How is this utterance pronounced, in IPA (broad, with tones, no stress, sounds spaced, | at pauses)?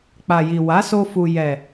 k͡p a˨ j i˨ w a˨˦ s o˧ f u˨ j ɛ˨